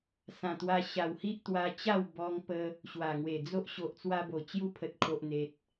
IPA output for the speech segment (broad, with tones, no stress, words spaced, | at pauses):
sã˨˩t̪wa˧ ɕa˨˩whi˦ʔ t̪wa˧t͡ɕa˥˧w bɔ˧ŋpə˧ | ɕwa˨˩ŋwe˨˩ d͡zo˦ʔ ɕo˨ʔt͡swa˧bo˨˩ t͡ɕju˦pʰə˨t̚kʰo˨ʔn̪e˨t̚